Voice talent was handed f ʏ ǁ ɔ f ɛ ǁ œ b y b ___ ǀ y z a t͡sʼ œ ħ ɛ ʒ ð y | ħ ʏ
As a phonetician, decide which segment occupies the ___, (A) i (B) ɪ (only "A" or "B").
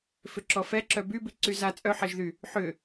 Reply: A